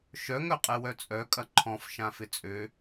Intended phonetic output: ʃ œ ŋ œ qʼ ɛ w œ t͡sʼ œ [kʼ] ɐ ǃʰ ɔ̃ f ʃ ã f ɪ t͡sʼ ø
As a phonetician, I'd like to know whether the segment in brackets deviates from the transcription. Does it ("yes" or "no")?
no